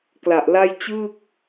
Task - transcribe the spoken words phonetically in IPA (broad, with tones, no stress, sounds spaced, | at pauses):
k l a˨˩ ʔ l a˥˩ j t͡ɕ ɯː˥˩ k̚